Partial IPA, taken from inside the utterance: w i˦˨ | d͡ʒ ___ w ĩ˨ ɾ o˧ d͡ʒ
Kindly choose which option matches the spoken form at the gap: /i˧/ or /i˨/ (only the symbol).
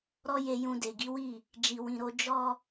i˨